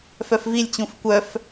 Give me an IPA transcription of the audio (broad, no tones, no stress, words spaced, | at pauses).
fœfvilʲt͡ɕũf kʷœf